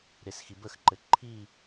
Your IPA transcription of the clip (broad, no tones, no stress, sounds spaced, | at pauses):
ɾ e s x i b ə x ǃ ɘ ǃʰ i